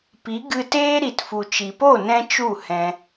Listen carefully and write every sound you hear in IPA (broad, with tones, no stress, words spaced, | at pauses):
pi˨˦ɡɨ˧teː˦ ɾi˨tfu˨t͡ʃi˨po˦˨ nɛ̃˦t͡ʃu˦˨ hɛ̃˦